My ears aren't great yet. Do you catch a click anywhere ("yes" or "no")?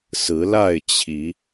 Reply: no